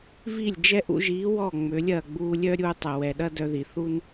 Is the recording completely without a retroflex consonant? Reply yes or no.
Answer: yes